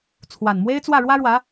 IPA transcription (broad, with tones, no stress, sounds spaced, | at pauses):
t͡sʰ w a˨˩ n m w e˥ ɪ̯ t͡s w ä˥˩ ɻ w ä˥ ɻ w ä˧˥